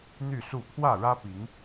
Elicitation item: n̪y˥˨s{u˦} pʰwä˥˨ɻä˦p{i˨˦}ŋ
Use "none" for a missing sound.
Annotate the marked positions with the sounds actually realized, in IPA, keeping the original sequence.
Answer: u˥˨, i˨˦

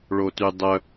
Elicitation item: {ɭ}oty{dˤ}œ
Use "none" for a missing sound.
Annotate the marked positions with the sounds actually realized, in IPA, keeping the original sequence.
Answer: ɭ, dˤ

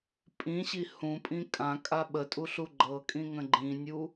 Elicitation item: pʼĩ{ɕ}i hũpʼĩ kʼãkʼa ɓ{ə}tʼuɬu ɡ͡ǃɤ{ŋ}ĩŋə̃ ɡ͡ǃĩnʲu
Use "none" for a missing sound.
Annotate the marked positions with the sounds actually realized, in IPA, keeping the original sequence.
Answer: ɕ, ə, kʼ

